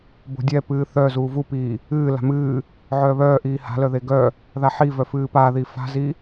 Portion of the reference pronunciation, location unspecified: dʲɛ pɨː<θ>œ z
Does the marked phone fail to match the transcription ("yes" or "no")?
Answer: no